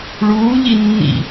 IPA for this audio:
ɭ uː ʎ i nː ḭ

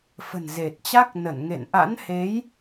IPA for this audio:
f ə̤˨˩ n z e˨˩ t̚ t͡ɕ a˦˥ k̚ n ə˧˩ n ŋ ḛ˧˨ n ʔ a̰˧˥ n h e˨˦ j

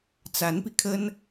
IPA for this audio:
t͡s a˧˥ n p i˧ kʰ ə˥ n

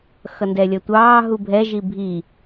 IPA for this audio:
x ʌ n d ɛ lʲ ʌ tʷ ɑː ɦ u bʱ ɛ ʒ i bʱ i

